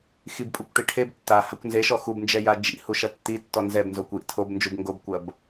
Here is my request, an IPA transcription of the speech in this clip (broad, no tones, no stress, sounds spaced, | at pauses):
x i b pʼ u kʷ ʈ i ʈʰ e b tː a h a kʷ n z e ʃ ɔ x u b n d͡ʒ ɛ j a d͡ʒ ḭ h u ʃ ɐ tː i tː ɔ n z ɛ b n z o kʷ j ḭ tʰ o b n d͡ʒ u b ŋ ɡ o b kʷ ɐ b